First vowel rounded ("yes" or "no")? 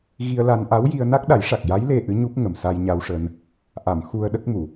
no